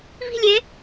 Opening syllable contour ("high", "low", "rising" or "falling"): falling